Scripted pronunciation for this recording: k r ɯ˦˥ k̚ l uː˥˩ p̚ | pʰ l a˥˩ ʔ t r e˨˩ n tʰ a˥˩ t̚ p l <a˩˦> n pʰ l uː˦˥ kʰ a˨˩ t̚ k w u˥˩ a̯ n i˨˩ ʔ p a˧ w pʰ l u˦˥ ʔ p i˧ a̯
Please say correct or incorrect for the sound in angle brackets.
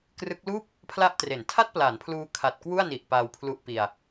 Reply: correct